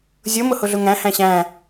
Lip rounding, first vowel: unrounded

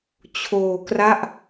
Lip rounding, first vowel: rounded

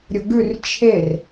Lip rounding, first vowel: rounded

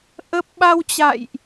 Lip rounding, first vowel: unrounded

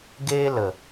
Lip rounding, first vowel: unrounded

